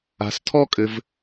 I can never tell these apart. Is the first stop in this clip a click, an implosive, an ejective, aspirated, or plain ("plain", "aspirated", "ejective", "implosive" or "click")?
aspirated